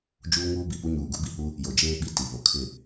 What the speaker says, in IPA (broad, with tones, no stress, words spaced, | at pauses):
d͡ʒuː˦ŋuː˦bi˨pu˦ ɲuː˨ɡu˦bi˨hu˦ | jo˨d͡ʒeː˦ɓi˦˨ ti˨ βo˨kʰɪ˦˨